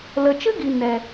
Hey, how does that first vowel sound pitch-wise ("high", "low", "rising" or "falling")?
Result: low